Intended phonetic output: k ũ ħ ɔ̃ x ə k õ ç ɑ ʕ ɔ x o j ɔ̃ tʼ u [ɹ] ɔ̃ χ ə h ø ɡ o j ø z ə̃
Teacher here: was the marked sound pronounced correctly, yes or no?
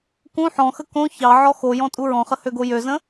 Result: yes